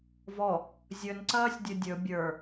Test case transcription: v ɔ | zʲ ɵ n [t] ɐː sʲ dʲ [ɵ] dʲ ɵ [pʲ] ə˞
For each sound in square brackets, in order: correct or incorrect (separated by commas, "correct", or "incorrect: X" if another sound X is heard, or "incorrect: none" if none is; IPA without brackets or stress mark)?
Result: incorrect: ǀ, correct, incorrect: bʲ